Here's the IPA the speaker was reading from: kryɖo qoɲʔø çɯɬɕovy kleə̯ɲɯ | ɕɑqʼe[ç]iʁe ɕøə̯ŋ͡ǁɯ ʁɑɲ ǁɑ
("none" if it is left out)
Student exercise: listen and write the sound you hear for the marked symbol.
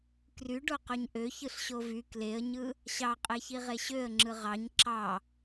ç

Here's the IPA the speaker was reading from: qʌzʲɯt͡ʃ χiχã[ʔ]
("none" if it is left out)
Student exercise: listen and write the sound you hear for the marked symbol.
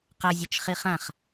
χ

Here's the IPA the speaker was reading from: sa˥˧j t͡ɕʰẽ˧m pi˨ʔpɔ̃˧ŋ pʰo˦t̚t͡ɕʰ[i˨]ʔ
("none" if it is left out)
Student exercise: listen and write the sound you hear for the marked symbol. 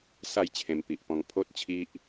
i˦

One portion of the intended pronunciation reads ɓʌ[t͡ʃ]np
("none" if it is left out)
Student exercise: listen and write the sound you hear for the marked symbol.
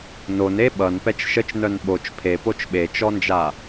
none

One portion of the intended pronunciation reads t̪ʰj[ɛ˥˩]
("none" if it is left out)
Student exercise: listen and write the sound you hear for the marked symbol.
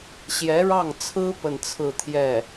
ɛ˥˩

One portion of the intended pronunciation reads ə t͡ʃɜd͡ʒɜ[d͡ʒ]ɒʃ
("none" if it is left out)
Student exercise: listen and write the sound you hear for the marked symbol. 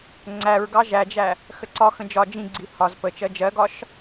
ɡ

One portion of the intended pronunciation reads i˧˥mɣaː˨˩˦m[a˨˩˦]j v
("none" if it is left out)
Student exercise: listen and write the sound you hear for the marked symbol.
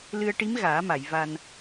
a˨˩˨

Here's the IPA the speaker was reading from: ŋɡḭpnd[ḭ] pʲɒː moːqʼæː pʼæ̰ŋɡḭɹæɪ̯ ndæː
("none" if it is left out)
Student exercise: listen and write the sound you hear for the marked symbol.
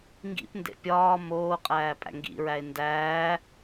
ḛ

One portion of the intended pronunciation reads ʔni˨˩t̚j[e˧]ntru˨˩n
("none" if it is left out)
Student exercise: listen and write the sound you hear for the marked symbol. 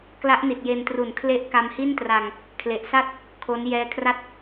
e˧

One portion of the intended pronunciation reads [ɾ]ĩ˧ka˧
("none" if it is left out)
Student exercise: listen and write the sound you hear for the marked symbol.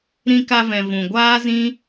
ɾ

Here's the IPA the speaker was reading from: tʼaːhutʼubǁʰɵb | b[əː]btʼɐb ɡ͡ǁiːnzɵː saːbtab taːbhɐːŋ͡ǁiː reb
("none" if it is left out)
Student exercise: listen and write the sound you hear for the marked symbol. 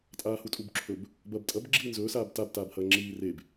ɐː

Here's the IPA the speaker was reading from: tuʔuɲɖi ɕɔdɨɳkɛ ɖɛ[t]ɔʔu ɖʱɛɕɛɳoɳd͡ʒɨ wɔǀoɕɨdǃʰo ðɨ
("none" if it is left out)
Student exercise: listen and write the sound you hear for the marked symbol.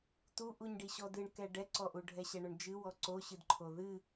ǀ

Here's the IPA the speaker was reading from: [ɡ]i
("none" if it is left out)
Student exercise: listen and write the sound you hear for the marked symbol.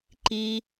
ǃ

